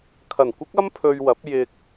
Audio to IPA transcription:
kʰɐ˨˩nkʷɪ˥k̚ɐ˥m pʰɵ˧ɥwɐ˨˥p̚ jɪ˧k̚

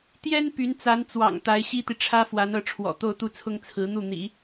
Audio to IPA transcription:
t̪jɛ˥n py˧˥nt͡sa˧˥n t͡swɑ̰˨˩ŋ t̪a˧˥ɪ̯ɕi˥t̪i˨ ʈ͡ʂʰä˥fwa˧˥nɤ˥˩ ʈ͡ʂʰwɔ̰˨˩t̪o˥˧ʊ̯t̪u˥˩t͡sʰʊ˥ŋ t͡sʰɹ̩˧˥n̪u˥˩n̪ḭ˨˩˦

